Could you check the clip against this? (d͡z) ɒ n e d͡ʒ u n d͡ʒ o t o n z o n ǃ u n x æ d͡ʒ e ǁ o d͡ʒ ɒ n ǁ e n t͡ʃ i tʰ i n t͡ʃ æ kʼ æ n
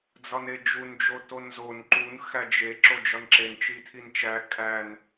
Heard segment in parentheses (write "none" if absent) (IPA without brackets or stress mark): d͡z